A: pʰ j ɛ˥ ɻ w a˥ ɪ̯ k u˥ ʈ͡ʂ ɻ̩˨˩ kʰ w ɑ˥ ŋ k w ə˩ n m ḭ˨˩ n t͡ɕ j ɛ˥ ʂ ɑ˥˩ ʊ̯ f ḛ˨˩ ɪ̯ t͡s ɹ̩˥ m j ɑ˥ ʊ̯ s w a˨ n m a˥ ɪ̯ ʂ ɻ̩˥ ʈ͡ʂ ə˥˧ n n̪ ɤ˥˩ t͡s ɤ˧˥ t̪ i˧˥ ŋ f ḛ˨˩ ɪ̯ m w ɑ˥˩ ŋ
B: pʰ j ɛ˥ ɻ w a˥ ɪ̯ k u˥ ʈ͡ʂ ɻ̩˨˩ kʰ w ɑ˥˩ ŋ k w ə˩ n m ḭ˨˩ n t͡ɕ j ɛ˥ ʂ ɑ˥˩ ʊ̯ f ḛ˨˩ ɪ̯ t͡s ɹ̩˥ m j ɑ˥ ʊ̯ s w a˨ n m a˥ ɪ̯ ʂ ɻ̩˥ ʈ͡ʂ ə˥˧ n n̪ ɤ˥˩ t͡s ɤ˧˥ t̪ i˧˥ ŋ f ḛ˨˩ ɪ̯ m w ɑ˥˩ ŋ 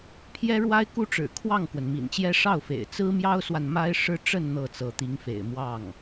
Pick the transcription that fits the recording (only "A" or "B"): B